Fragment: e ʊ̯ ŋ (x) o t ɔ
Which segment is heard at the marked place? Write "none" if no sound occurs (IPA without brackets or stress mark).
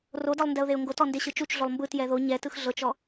ɡ